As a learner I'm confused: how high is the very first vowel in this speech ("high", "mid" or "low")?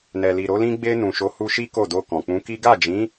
mid